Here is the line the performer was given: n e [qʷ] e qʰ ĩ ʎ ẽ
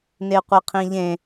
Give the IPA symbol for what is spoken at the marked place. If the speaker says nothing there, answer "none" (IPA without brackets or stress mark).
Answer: qʷ